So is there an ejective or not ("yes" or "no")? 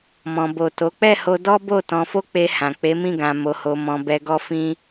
no